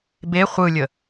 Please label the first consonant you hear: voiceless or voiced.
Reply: voiced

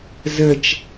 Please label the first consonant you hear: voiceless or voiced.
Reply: voiced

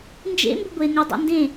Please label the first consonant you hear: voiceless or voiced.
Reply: voiced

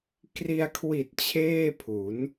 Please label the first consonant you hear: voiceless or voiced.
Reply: voiceless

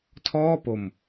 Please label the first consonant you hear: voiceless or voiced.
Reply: voiceless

